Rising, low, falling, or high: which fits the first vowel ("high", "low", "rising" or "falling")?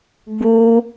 high